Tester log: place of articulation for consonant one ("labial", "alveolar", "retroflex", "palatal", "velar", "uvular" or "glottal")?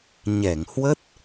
palatal